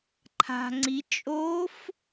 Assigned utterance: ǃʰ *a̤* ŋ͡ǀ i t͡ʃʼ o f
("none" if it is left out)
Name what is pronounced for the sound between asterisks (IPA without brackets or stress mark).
a̤